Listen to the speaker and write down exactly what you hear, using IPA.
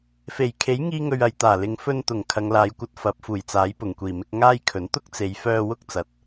f e˨˩ j kʰ e˨˥ j ŋ iː˥ ŋ ɵ˧ ɥ ɐ˨˧ j t̪ aː˨˩ l ɪ˨˧ ŋ f ɵ˧ n t̪ ʊ˨˩ ŋ kʰ ɐ˨˧ ŋ l aː˨˧ j kʷ ɐ˧ t̚ f ɐ˨˥ p̚ f uː˨˩ j t͡s aː˨˥ j p ʊ˨˩ ŋ kʷ iː˨˩ m ɪ˧ k̚ ŋ aː˥ j kʰ ɵ˨˥ n t̪ ʊ˥ k̚ t͡s e˨˧ j f œː˧ w ʊ˥ k̚ t͡s ɐ˨˥ t̚

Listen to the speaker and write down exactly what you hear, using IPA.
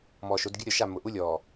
m ɔː˨ ʃ o˨˦ d ɡʲ ʊ˦ ɾʲ ɔ˨ ʃ a˦˨ mː ʊ˨ ʔ u˦ lʲ ɔː˨

